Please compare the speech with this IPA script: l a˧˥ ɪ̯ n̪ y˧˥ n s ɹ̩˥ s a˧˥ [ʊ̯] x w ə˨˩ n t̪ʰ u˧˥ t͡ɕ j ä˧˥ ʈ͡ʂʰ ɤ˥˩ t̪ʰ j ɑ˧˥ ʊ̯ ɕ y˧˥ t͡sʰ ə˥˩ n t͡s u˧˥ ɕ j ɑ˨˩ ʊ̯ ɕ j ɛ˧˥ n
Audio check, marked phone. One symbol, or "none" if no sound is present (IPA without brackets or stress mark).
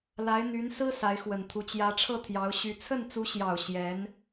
ɪ̯